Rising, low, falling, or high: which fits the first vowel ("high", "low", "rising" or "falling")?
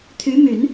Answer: rising